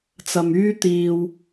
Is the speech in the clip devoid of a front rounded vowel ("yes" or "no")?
no